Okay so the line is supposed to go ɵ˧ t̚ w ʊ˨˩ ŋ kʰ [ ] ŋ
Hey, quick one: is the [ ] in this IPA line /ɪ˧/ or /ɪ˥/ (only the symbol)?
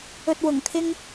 ɪ˥